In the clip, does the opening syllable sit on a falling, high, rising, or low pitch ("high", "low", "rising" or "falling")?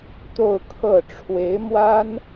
falling